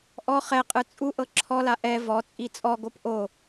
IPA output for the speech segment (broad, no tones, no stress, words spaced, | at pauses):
ʔɔ χɛqʼɯ t͡sʼuʔɤ ǁʰɔla ʔɛ vɔt͡sʼi t͡sʼɔɡop ʔo